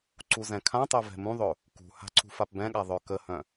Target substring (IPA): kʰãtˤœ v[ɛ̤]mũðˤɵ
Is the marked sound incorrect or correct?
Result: correct